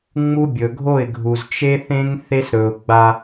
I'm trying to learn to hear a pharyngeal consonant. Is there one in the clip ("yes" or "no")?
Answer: no